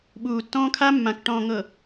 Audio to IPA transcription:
ɓ uː˨ tː ɔ̃ː˦ kʰ a˦ mː ã˨ k ʈ ɔ̃ː˨ ŋ ɤ˨

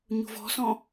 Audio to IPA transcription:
ɲ ṳ v ɔ̤ s ɔ̃

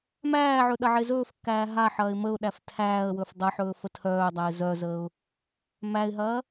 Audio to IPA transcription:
m æː ʕ ɵ ɗ ɐ ʕ e z ɵː f kː æː ɦ a ħ ɐː ɪ̯ m ə ʊ̯ ɗ æ f tʰ æː ə̯ w ɵ f dˤ ɐ ħ ɵː f ə tʰ œː dˤ æ ɪ̯ z œ z əː ʊ̯ | m æ ɪ̯ ɦ ɐː

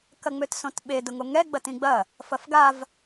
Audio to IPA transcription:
k ɐ ŋ͡m ø t s õ t ɓ e d ʊ ŋ o ŋ ɛ ɡ͡b ɐ t ĩ ɡ͡b ɐ | f ɐ f ɡ a v

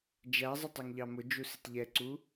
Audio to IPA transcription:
d͡ʒ æ zˤ ɪ tˤ ɛ ŋ ʎ ɑ m ʊ d͡ʒ u s ɪ t ʎ ɛ ǀ u

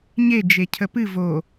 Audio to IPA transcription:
ɲ e d͡ʒ e cʰ ə p ɨ v o

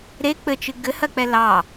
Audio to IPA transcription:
ɾ e k͡p ɘ t͡ʃ ɨ ɡ ɘ h ɜ k͡p ɛ l ɑ

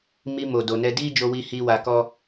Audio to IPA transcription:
m i˧ m o˨ d o˨ n ɛ˧ d i˦ d͡ʒ o˧ w i˧ h i˦ w a˧ k ɔ˦

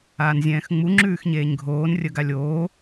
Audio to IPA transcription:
aː n zʲ ɛ̃ː x ŋ͡m u ŋ͡ǁ ʉː x ɲ eː ɲ ɡʱ oː n rʲ ə ɡ a lʲ oː

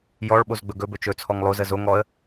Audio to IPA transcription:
j ɔ ɭ ɓ o z ɡ͡b ɵ ɡ ɵ b ɵ t͡ʃ ɵ t͡sʰ ɔ ŋ lˠ o z ə z o ŋ ɔ ə̯

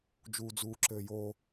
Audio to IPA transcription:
d͡ʒ uː d͡z uː ǁ ɘː j o

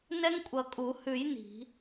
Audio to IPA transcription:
n ɛ˦˥ ŋ kʷʼ ʌ˧˩ kʼ u˨˩˦ h ʉ˨˩˦ j n i̤˨˩˦

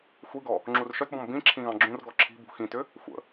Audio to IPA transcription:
xʷ i ɡ ɔ | ŋ͡ǁ u r ʃ œ t b ɔ̃ m b ĩ ǁʰ ĩ ɣ ɑ̃ ɡ͡ǁ ũ r ɡ ɔ ǁʰ i̤ b ṳ x ĩ t ʏ | xʷ ə̰

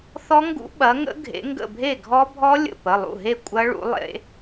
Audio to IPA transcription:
θ ɔ˦˥ ŋ ɡ ṵ˦˥ ɓ ɐ˨˦ ŋ ə̰˦˥ ɡʱ ḛ˨˦ ŋ ɡ ə̰˧˩ bʱ e˥˩ ɡʱ ɔ˦˥ bʱ ɔ˦˥ lʲ ə̰˧˩ p ə˩˧˩ lˠ ṵ˥˩ ɦ e˥˩ kʷʼ ɐ˦˥ ɭ ṵ˨˦ lˠ ḛ˨˦

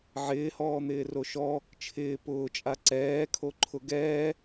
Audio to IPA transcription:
ʕ ɪː h ɔː n̪ ɪː r o ʃ ɔ | t͡ʃʰ ɪː p ʊː t͡ʃʼ a ǀ ɛː kʰ o ǃʰ ʊ ɡ ɛː

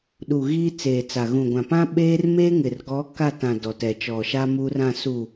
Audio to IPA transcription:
ɗ u˨ ɣ iː˦ t͡s eː˨ t͡s a˨ ɣ ũ˨ ɡʷ ã˨ p ã˦ ɓ eː˦ r m eː˦ ŋ ɪ˨ r ɡ ɔ˨˦ k a˦˨ t ã˨ d ɔ˨ t ɛ˨ t͡ʃ ɔ˨ ʃ a˦ m u˦ r ã˦˨ s u˨

